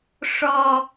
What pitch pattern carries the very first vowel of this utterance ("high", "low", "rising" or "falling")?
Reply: low